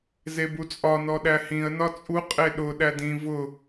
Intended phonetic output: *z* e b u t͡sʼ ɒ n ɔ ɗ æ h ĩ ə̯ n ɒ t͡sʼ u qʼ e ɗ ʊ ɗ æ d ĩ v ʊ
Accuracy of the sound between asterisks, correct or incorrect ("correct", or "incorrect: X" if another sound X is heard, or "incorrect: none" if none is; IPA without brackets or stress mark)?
correct